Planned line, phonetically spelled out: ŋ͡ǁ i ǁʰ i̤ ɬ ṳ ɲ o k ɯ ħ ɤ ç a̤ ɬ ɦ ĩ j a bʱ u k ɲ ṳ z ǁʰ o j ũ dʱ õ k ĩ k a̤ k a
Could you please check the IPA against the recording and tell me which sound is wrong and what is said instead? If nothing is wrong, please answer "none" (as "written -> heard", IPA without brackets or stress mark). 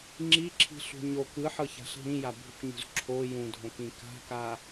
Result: none